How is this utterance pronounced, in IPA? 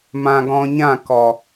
mã˧ɡɔ̃˧ɲã˦˨ kɔ˨

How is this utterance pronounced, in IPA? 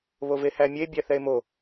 βovehæmʲe bʲæθɛe̯mo

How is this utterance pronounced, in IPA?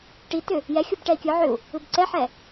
ʈitʏ | jɛxʲub ʈɛi̯kʲɯʕʏu̯ | ɯbǀɛħɛ

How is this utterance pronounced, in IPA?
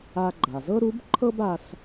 a˧ɡ͡ǃa˩zɤ˥ ɾu˧˥b ǃʰɤ˥ba˧s

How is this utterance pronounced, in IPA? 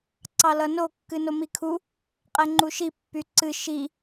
ǀɑlʌno kːɨnomikʰu | qʼɛŋ͡ǃuʃi pːyǀɨ ʃi

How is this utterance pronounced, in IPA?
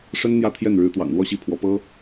ʂə˥n n̪jä˥˧ t̪ʰjɛ˥˩nɻɻ̩˧˥t̪wɑ̰˨˩ŋ lwɔ˥ɕi˥˩pʰwɔ˧˥ pɤ˥

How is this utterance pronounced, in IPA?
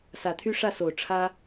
sä˨˦t̪ʰy˦ʂä˥˨so˨˩ʊ̯ ʈ͡ʂʰä˦

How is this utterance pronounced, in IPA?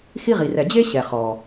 xi˧ʁi˩rɛ˩ d͡ʑe˥ɕɛ˩ χɔ˩

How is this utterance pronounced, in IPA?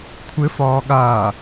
kʷʰɘfɒː ɠaː

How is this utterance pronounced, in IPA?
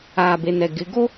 aː˨be˨nɛ˨ ɡɪ˨˦ɡo˦

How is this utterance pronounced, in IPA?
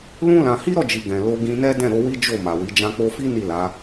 lũ˦ lã˧ hi˦ɾɔ˦˨d͡ʒi˨ ɡɛ̃˨lo˧ɡĩ˧nɛ˦ dɛ̃˦˨ɾo˧wi˦ d͡ʒo˦˨ma˨wi˨˦ d͡ʒã˧k͡po˧fi˦ ni˦˨la˨˦

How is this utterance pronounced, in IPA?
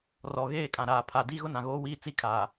rɔ˨ɣeː˦˨kʼã˨ ɾaː˨pʰa˨di˦ ɣʊ˦ nã˨ɣoː˦wiː˦ t͡si˦kʰaː˨

